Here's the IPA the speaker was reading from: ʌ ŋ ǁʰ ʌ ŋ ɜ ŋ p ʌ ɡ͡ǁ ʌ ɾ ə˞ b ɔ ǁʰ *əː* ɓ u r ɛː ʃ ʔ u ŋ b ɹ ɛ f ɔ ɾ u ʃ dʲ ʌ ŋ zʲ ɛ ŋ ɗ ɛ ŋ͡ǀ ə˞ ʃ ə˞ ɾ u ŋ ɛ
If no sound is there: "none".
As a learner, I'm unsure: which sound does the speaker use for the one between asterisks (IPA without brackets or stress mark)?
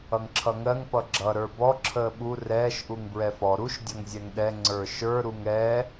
əː